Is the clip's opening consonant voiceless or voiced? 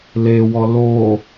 voiced